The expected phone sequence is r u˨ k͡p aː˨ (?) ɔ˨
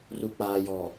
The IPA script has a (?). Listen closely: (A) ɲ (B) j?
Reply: B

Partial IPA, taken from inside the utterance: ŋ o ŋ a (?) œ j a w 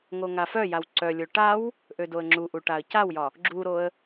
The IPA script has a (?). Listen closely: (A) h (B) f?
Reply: B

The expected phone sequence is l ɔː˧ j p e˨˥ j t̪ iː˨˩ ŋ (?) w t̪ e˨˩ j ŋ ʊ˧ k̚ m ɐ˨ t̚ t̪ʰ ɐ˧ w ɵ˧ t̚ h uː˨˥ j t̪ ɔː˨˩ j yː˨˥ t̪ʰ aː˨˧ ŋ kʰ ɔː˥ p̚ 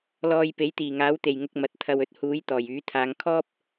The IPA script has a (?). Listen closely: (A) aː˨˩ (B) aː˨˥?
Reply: B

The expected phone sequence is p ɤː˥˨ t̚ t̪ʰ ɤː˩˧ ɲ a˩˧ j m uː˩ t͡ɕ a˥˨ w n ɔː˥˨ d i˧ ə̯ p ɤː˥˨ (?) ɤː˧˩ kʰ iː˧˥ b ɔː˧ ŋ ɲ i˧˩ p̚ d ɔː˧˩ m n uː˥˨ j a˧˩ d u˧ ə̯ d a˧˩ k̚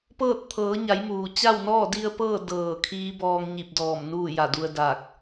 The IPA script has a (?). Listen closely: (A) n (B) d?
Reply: B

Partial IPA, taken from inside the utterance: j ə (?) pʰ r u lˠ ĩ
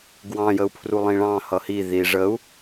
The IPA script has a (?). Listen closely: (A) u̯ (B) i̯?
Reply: A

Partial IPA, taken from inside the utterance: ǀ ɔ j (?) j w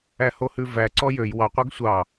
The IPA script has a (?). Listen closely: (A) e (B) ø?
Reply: B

